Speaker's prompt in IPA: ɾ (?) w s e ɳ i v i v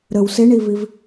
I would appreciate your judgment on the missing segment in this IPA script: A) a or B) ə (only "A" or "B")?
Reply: B